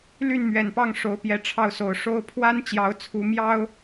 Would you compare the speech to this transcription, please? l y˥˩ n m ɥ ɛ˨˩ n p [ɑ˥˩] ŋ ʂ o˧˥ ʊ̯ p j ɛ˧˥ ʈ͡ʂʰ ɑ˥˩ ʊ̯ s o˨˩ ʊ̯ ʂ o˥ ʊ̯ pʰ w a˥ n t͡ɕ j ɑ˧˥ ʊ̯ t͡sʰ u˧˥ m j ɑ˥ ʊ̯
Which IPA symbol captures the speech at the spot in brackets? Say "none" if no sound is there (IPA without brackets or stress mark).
ɑ˥˩